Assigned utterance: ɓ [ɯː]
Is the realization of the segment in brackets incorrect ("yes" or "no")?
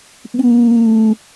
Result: yes